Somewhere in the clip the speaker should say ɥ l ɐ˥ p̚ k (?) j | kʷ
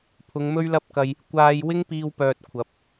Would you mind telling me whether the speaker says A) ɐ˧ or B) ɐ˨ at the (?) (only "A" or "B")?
A